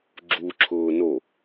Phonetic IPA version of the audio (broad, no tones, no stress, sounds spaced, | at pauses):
ɡ͡ǁ u ǁʰ ʊː n o